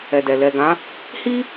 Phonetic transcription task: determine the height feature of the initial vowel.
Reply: mid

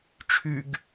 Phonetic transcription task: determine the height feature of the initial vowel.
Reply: high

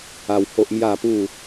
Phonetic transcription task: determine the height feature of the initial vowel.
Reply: low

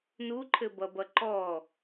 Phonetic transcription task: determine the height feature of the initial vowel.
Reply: high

